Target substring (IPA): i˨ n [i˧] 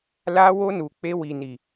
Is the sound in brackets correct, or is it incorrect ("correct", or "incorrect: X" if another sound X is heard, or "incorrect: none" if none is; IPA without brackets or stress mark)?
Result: incorrect: i˨